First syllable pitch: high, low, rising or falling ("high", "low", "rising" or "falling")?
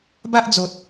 high